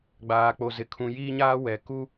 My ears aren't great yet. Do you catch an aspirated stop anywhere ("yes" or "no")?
yes